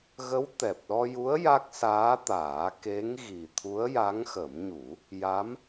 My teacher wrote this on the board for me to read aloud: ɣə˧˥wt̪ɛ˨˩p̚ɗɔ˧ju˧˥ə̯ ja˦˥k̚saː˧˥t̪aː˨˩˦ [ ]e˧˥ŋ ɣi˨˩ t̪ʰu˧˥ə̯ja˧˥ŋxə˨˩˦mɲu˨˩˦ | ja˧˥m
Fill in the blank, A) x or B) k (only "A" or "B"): B